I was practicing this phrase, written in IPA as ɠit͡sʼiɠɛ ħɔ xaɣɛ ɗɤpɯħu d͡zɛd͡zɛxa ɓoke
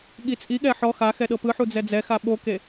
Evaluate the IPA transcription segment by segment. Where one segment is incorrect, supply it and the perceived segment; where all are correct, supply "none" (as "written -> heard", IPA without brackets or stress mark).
ɣ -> x